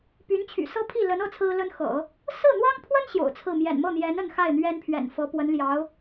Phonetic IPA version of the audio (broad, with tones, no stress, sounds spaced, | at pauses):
p y˧˥ n t͡ɕʰ y̰˨˩ s ɤ˥ pʰ i˥˩ l ə˧˥ n ɤ˥˩ t͡sʰ ɹ̩˥ l ə˥ n x ɤ̰˨˩˦ | s ɹ̩˥˩ n̪ w ɑ˥ ŋ pʰ w ə˥ n ɕ j o̰˨˩ ʊ̯ t͡sʰ ɹ̩˥˩ m j ɛ̰˨˩ n m ɤ˥˩ n̪ j ɛ˧˥ n ə˥˧ n x a˥˩ ɪ̯ n̪ ɥ ɛ˥ n pʰ ɥ ɛ̰˨˩ n f ɤ˧˥ p w ə˧˥ n l j ɑ˧˥ ʊ̯